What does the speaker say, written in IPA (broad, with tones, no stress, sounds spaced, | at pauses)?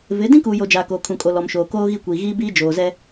v ɪ˨˦ d ĩ˦ k uː˨ j o˨ d͡ʒ aː˨ k oː˨ kʰ ũ˨ kʼ o˨ l ɔ˨ m ʃ oː˨ k oː˦ ɣ i˦ kʷ iː˨ ɣ iː˦ b iː˦ d͡ʒ oː˨ z ɛ˦